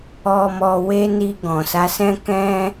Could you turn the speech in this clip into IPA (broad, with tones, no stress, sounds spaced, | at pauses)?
ɔ˧ m ɔ˧ w e˦ n i˧ ɡ ɔ̃˨ s a˨˦ s ɛ̃˦ k ɛ̃˦